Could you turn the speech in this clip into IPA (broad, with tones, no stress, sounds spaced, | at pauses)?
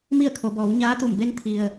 m i˥˨ ə̯ kʰ o˩˧ b ɔː˩˧ w ɲ aː˧˥ t̪ u˧˩ m b e˧˥ n t̪ʰ i˩ ə̯